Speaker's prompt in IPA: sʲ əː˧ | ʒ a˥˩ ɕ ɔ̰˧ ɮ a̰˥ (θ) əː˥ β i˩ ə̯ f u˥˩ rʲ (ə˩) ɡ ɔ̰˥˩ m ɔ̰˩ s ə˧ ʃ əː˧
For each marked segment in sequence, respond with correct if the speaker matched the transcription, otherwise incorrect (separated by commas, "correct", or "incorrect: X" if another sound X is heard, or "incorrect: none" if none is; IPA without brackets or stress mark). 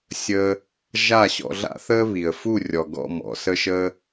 correct, incorrect: ɔ˩